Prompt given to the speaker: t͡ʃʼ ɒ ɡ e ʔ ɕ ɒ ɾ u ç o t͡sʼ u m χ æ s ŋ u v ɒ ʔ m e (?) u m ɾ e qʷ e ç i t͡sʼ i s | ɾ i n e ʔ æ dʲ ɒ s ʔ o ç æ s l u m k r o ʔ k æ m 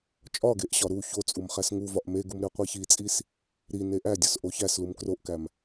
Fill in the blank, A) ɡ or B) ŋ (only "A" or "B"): A